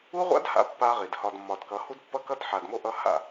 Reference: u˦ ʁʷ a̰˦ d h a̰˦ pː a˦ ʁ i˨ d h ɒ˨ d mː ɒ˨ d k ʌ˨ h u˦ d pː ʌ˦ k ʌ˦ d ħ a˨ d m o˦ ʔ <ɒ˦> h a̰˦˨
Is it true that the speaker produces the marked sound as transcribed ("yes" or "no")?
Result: no